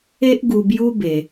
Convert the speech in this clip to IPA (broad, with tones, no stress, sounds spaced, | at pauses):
e˦ ʔ ɡ u˧ b j u˦ b e˧